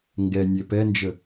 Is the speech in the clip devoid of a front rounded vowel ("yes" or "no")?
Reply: yes